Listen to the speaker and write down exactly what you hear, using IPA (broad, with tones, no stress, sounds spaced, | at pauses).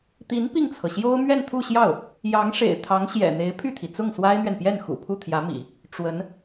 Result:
t̪ i˧˥ n p i˥˩ ŋ t͡sʰ ɤ˩ ɕ j o˥ ʊ̯ m ɥ ɛ˥˧ n t̪ʰ u˥˧ ɕ j ɑ˥˩ ʊ̯ | j ɑ˧˥ ŋ ʂ ḛ˨˩ ɪ̯ t̪ʰ ɑ˧˥ ŋ ɕ j ɛ̰˨˩ n̪ e˧˥ ɪ̯ pʰ y˥˩ t̪ʰ i˩ t͡s ʊ˥˩ ŋ s w a˥ ɪ̯ n̪ ɥ ɛ˨ n p j ɛ˥˩ n x ṵ˨˩ pʰ u˥˩ t̪ʰ j ä˧˥ m ḭ˨˩˦ | ʈ͡ʂ w ə˧˥ n